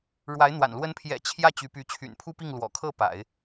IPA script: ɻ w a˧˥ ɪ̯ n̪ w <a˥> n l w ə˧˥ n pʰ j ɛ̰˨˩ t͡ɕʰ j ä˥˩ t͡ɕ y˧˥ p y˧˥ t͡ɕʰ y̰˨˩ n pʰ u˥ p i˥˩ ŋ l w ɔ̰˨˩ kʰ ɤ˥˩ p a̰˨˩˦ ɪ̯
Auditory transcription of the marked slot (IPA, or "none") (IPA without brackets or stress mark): a̰˨˩